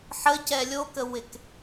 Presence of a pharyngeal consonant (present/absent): present